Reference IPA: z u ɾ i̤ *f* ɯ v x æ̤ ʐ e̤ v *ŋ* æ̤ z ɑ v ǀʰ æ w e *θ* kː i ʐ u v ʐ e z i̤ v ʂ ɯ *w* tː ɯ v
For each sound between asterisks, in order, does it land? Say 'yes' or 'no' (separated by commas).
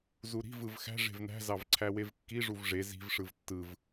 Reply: no, no, no, no